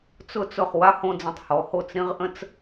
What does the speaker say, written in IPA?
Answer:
t͡sʊ˧t͡sʊ˧˩χ wa˥˧hõ˧d͡zə̃˧˩tˤhɔ˩˧ ho˧˩t͡sɾĩ˧ʁ ʔə̃˥t͡s

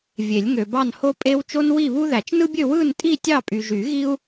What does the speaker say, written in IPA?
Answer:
vʲe˨˩˦lʲŋø˨bɑ˥˧n ho˥pʼe˥w t͡ʃo˥nwi˥˧βu˥ ðæ˨˩˦t͡ʃnɯ˥bʲø˥˧ wɯ˥˧ntʼi˥˧ tʲɑ˥˧pʼy˨ʒy˨˩˦ɣi˥u̯

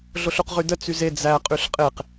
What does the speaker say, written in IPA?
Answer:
ɮoɬuqʁydə t͡syze d͡zæ qʼyɬqʼeq

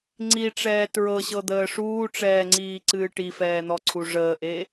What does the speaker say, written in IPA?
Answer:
ŋ͡ǀiʈ͡ʂɛː tɹɤɕɤd̪əː ʂuːʈ͡ʂɛːŋ͡ǀiːǀɨː ʈifɛːn̪ɔǀʰu ʐəːʔe

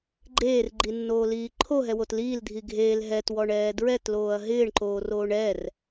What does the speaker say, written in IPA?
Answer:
ɡ͡ǃeːrɡ͡ǃinːoːliː ǃʰoɦɛwot liːldʱi ɡʱel ɦɛtwɔɳɛː dɹɛtloːɐ̯ ɦɪːɳǃoːroːɳ ɛr

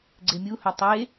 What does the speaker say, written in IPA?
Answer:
ɡ͡ǀemʲuhœ tˤe

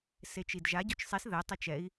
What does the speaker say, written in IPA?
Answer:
set͡ʃidʒa ɟot͡ʃsˤis ðɛ tˤet͡ʃɛi̯

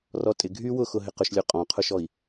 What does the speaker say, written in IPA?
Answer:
rɔtʼɪ ɡʱy wʊxʊ ɦɪqʊʃlʲo qʼɔ̃qʰʊʃɔi̯

